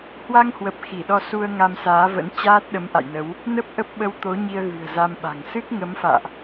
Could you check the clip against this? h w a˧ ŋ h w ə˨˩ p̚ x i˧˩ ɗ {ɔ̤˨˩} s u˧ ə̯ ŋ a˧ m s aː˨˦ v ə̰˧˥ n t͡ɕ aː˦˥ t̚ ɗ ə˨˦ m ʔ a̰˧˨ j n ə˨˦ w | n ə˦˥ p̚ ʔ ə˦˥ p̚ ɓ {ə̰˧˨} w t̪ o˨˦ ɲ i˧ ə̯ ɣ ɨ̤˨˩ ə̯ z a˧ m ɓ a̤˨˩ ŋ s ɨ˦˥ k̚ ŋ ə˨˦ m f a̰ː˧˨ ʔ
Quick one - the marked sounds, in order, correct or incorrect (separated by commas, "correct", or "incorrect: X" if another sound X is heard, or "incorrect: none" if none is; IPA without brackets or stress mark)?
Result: incorrect: ɔ˧, incorrect: ə˧